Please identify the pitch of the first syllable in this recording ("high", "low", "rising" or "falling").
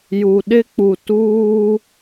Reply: low